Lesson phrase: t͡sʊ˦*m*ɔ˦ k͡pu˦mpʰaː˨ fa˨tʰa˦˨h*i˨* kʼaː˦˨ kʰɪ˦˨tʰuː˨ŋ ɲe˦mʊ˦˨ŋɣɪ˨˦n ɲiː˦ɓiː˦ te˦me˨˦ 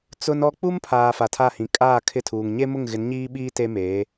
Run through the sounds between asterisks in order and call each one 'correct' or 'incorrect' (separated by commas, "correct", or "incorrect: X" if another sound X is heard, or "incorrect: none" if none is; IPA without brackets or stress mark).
incorrect: n, incorrect: ĩ˨